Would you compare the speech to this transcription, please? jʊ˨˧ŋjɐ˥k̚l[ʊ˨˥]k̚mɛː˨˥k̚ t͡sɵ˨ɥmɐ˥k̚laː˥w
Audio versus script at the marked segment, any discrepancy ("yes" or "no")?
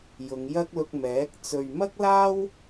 yes